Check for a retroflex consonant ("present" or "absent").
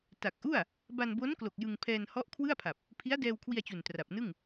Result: absent